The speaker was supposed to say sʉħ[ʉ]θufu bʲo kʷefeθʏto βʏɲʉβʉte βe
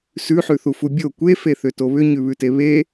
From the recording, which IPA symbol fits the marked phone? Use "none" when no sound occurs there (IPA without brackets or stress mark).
ʉ